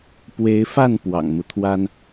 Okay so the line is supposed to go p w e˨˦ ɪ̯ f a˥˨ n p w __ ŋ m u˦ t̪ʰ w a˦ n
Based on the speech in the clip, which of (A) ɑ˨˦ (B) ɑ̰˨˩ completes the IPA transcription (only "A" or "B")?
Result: B